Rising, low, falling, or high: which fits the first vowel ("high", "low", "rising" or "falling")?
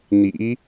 rising